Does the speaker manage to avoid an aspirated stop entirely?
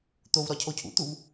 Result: no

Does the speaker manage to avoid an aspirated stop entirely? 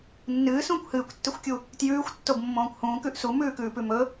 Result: yes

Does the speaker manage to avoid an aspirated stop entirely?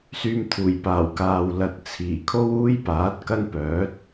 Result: no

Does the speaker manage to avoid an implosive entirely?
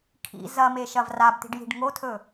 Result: yes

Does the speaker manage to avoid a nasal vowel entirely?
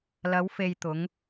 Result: yes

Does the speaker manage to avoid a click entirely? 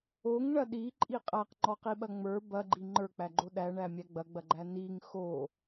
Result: no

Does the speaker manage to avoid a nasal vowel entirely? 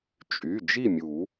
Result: yes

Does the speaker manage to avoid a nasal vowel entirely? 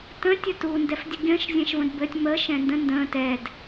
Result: no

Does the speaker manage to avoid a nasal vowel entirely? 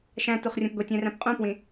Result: no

